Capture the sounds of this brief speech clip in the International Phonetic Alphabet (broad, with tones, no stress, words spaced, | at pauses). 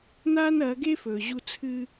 n̪aː˦nɐː˨˦ɡeː˦f ɵː˨ ʑu˦˨t͡sʰɨ˦